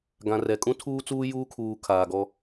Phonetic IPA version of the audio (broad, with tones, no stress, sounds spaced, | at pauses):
ɡ ã˨ r ɛ˨ kʼ ũ˦ tʰ uː˦ t͡s uː˦ j uː˦ kʰ uː˨ kʰ aː˨ ɡ ɔ˦